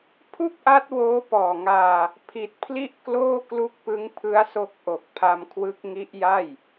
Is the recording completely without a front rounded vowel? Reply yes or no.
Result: yes